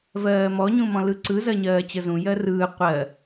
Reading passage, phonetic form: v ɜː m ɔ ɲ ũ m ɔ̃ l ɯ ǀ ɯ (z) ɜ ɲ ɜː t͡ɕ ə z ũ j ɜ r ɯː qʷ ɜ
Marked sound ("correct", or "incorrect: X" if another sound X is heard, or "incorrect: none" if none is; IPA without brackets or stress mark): correct